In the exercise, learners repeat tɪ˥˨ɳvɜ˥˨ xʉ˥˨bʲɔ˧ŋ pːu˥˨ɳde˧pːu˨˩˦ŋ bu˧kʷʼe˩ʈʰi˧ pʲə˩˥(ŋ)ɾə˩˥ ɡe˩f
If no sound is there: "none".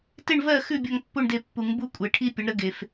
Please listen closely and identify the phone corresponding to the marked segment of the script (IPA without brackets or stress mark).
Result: ɳ